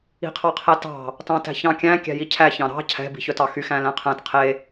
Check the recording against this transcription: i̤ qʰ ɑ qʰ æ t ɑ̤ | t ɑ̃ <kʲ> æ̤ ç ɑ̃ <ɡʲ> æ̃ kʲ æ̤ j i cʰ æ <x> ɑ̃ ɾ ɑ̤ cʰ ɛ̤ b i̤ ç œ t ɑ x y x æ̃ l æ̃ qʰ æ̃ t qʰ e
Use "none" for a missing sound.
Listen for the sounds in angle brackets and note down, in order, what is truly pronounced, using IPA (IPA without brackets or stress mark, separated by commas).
t, kʲ, ç